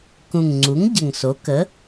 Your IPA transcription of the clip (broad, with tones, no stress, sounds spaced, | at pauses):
k ũ˨˩ ŋ ŋ͡ǀ u˩˥ ŋ ɟ ə˨˩ ŋ s o˩˥ k ə˩˥